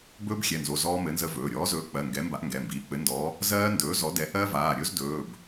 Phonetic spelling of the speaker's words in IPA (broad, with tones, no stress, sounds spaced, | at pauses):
b ɵː˦˥ b xʲ ɛ˩˧˩ n z o˩˧˩ z ɔː˦˥ m ɘ˨˥ n z ə˦˥ v ɵː˩˧˩ ɾʲ ɔː˨˥ z ɵː˨˥ k͡p ɜ˩˧˩ ŋ ɡ ɛ˨˥ m b a˨˥ ʔ ŋ ɡ ɛ˩˧˩ m b iː˩˧˩ k͡p ɘ˨˥ n d ɔ˨˥ | z ɜː˦˥ n d ɵː˨˥ z ɔ˨˥ d ɛ˨˥ ʔ ɜ˦˥ v aː˩˧˩ ɾʲ ɵ˦˥ z d ɵː˩˧˩ b